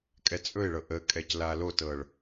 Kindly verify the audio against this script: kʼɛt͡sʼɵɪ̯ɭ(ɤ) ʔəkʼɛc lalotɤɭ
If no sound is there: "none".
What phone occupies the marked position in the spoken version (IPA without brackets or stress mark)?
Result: ɤ